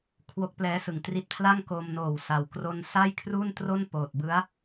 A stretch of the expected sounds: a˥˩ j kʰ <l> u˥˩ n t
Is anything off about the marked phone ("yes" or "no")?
yes